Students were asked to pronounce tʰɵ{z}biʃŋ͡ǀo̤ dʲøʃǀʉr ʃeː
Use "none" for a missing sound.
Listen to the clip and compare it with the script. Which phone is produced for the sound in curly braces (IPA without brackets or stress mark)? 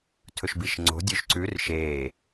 ʃ